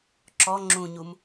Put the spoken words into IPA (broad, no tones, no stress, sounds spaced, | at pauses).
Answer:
ǁ ɔ ŋ͡ǁ ũ ɲ u m